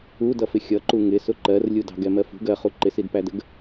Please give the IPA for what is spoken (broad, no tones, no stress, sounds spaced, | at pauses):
u d ʌ f ɪ xʲ ʌ ǃ u ŋ ɪ s ʊ ǃ ɜ r lʲ u d ɑ̤ ɡ ɛ m ɜ f ṳ ɡ ɜ χ u ǃ ɪ s i d p æ d ə ɡ